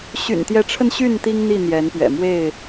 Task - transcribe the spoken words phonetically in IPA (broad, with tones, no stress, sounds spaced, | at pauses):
ɕ y̰˨˩ n t̪ j ɛ˨˦ ʈ͡ʂʰ ə˧ n ɕ y˥˨ n t̪ i˦ ŋ n̪ i˥˨ n̪ j ɛ˨˦ n p ɥ ɛ̰˨˩ m w e˥˨ ɪ̯